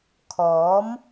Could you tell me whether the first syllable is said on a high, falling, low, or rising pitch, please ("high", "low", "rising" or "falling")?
rising